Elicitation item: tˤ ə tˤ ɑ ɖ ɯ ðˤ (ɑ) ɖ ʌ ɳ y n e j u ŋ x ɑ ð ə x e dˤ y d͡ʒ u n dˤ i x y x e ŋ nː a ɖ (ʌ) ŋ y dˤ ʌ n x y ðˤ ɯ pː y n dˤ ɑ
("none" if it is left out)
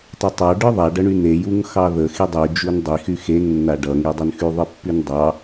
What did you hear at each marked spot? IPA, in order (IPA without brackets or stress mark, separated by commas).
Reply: a, ʌ